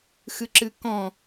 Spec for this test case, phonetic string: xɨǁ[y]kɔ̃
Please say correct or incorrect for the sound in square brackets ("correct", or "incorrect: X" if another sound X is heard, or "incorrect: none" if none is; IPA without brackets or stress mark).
incorrect: ɨ